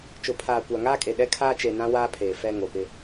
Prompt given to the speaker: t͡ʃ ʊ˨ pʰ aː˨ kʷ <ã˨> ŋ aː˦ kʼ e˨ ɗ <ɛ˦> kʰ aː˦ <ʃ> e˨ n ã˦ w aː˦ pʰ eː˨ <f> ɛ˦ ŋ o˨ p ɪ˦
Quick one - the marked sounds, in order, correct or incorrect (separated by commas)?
incorrect, correct, incorrect, correct